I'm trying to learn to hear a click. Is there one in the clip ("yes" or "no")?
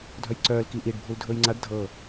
yes